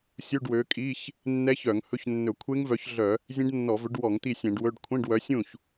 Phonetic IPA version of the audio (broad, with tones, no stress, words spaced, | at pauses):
sʲu˧˥˧ɖwø˨˦kʼi˧˥˧ç | nːɛ˦˥çœ˧˩˧ŋ hɵ˦˥ç nːɵ˧˩˧kʷʰe˦˥ŋvœ˨˦çɮœ˧˩˧ | zʲẽ˦˥ɖnːɔ˧˩˧vɵ˨˦ɖwɔ˧˩˧ŋ t̪i˥˩sʲɛ̃˧˩˧ɖwɵ˧˥˧ɖ kʷʰẽ˧˥˧ɖwœ˨˦ sʲũ˥˩ç